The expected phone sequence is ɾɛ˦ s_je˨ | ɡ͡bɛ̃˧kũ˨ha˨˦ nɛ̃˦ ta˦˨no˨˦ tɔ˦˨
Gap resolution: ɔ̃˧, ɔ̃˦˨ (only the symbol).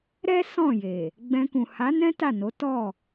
ɔ̃˦˨